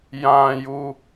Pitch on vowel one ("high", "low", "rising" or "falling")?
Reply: high